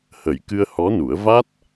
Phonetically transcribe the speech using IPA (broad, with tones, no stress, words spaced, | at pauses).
hə˨˩˦jkɨ˧ə̯hɔ˧˥nu˨˩˦ə̯ va˦˥t̚